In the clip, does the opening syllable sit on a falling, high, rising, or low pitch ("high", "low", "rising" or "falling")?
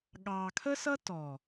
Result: low